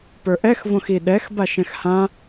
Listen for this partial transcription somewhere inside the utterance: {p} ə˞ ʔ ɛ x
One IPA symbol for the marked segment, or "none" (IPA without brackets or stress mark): p